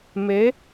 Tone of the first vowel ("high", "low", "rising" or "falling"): rising